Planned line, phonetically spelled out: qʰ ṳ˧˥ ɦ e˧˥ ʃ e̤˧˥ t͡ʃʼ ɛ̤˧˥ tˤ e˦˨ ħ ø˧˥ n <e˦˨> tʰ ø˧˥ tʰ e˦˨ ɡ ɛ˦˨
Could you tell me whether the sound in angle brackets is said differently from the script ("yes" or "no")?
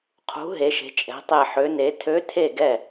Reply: yes